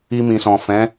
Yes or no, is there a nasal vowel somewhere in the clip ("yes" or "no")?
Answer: yes